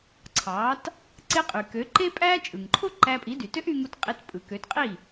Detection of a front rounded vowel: present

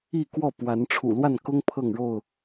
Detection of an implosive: absent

